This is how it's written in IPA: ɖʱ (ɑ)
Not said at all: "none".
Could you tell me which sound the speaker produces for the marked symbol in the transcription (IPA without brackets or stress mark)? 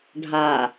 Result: a